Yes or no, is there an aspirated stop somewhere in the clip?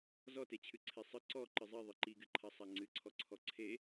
yes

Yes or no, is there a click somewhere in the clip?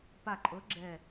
yes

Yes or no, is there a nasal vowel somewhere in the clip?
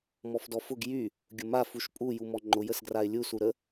no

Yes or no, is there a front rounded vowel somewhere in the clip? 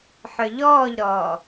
yes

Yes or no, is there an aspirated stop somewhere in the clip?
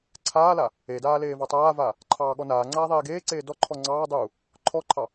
yes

